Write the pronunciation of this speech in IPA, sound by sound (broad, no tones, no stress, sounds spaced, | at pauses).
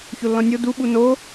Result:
ç o lː ɔ̃ nʲ o d u ɓ u n o